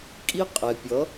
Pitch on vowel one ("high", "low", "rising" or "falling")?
high